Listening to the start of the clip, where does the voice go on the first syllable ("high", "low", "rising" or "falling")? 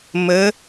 rising